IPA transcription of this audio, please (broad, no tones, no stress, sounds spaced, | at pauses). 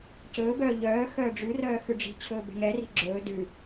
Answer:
c ɵː b œː ʎ œː x œː ɖ͡ʐ ʉ r œː x ʉ ɖ͡ʐ i̤ t͡ɕʰ ɵː b ɛ̤ ŋ ɛ r i̤ ɡ͡ǁ ɵː d ʉ